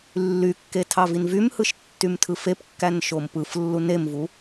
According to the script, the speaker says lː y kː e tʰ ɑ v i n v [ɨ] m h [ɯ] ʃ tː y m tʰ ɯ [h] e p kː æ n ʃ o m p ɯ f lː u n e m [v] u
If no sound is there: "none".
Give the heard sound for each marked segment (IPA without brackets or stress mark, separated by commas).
y, ɯ, f, v